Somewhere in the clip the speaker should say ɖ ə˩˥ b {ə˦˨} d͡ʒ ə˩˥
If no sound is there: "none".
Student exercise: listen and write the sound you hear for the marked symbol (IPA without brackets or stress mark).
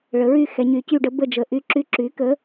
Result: ə˦˨